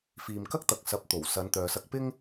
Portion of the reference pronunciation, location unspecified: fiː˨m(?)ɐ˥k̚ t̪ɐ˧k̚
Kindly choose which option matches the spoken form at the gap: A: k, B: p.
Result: A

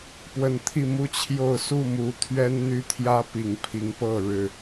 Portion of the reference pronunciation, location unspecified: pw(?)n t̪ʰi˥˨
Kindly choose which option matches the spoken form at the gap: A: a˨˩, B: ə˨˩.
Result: B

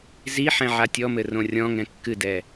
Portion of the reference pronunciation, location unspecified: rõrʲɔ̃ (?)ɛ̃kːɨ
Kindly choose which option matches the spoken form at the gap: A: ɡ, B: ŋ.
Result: B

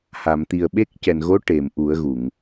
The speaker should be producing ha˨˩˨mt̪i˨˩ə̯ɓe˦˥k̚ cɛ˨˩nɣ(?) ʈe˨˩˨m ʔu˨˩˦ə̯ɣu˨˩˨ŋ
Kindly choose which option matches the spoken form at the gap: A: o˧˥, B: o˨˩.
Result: A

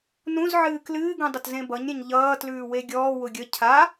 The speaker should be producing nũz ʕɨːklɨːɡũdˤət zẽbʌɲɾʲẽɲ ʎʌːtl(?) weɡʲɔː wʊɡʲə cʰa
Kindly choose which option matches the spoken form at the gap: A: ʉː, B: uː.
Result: A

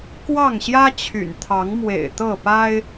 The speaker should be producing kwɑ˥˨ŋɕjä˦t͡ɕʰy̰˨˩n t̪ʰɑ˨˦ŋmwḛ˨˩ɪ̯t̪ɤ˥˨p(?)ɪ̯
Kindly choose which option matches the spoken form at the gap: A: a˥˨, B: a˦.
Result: B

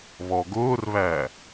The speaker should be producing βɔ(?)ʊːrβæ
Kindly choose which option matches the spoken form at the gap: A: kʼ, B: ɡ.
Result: B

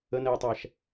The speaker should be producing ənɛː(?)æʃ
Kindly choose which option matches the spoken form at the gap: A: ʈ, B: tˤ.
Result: B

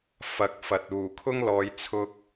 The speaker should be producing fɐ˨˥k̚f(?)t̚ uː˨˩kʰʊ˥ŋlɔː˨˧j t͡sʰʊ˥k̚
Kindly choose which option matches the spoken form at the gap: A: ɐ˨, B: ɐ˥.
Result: A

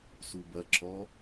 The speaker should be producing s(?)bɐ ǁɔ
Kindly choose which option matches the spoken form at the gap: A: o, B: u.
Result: B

